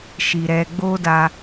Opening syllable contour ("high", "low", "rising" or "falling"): low